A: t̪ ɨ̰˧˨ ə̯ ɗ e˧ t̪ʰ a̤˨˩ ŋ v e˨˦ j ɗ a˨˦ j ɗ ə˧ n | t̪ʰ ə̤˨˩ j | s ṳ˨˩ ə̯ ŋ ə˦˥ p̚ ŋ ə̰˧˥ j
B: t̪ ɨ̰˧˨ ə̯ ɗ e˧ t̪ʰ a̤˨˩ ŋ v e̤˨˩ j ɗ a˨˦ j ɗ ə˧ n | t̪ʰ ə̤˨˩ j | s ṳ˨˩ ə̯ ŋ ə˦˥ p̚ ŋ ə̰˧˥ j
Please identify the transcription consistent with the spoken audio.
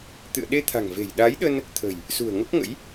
B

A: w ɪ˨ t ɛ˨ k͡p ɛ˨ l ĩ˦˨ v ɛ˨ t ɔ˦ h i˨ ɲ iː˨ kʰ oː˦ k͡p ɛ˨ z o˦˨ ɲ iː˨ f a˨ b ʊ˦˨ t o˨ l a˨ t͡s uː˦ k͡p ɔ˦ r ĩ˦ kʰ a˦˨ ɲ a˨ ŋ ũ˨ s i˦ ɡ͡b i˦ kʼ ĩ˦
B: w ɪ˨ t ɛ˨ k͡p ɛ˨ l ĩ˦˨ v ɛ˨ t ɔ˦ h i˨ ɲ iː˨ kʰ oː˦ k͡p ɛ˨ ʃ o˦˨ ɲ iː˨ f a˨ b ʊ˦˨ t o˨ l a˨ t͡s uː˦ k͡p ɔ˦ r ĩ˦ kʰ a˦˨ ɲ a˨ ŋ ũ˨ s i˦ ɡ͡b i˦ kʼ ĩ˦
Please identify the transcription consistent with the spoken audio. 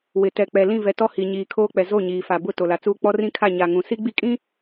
A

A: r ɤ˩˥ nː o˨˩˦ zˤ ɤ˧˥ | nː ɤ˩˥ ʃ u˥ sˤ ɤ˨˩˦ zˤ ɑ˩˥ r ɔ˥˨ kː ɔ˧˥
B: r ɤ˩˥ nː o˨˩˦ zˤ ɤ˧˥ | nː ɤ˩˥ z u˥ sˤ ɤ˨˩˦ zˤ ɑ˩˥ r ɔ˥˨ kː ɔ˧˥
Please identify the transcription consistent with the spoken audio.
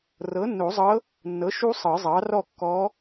A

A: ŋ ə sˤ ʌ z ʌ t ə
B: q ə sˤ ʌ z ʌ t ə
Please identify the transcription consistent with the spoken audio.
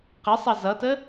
B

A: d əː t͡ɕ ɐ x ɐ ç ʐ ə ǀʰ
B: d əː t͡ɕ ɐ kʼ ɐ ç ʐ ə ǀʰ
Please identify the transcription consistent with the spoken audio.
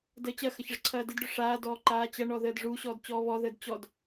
A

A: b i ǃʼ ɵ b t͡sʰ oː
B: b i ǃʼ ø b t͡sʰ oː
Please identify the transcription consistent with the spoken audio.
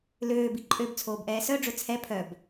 B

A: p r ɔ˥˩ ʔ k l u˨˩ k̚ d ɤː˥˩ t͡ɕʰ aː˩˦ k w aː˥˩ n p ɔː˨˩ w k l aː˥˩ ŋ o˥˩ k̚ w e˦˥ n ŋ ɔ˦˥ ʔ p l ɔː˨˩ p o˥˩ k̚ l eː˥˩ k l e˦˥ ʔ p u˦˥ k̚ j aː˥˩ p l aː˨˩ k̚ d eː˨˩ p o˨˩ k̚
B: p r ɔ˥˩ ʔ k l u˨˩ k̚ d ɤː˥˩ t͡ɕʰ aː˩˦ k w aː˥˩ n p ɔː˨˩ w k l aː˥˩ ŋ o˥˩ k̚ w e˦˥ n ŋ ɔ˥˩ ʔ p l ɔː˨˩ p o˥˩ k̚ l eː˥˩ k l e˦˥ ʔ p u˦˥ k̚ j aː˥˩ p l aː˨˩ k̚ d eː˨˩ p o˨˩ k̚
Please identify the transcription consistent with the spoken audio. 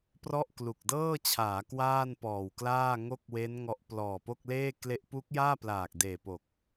A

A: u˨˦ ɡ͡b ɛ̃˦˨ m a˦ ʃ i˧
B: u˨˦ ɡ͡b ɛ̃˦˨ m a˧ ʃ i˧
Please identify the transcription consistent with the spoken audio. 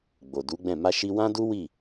B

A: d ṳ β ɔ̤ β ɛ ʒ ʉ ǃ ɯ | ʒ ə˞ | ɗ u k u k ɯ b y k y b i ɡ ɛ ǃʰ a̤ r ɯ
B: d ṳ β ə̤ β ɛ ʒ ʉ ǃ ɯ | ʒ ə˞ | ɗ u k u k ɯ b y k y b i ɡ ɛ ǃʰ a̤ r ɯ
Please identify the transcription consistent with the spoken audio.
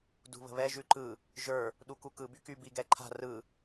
B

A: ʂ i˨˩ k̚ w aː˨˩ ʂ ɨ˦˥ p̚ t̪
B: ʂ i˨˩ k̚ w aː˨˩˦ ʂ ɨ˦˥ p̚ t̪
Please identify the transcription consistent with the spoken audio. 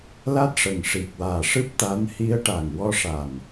A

